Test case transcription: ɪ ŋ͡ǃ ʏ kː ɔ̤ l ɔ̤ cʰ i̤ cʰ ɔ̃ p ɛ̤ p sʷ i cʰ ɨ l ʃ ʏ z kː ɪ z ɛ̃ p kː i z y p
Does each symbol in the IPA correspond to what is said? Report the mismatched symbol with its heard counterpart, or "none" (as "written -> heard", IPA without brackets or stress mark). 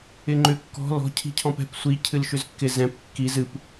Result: y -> ɨ